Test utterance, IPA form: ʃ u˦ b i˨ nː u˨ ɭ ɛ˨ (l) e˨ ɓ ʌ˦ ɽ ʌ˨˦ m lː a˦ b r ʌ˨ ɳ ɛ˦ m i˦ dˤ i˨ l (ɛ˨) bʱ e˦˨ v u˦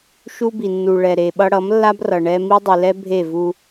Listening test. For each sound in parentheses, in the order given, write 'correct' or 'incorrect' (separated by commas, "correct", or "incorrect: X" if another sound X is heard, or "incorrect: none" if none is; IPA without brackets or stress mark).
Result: incorrect: ɾ, incorrect: ɛ˦